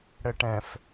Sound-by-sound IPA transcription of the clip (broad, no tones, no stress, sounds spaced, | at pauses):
ɽ ɘ ʈ ɛ̃ f